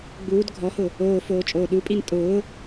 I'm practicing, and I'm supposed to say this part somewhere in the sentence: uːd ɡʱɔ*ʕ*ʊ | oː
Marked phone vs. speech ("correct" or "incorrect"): incorrect